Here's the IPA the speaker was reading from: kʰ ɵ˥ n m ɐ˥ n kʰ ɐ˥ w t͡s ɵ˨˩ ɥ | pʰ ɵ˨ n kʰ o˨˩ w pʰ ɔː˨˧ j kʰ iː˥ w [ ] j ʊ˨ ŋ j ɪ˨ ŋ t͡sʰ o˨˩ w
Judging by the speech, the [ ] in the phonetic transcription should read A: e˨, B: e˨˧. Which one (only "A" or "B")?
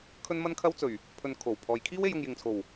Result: B